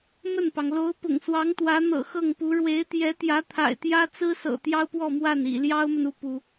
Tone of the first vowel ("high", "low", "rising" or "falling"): falling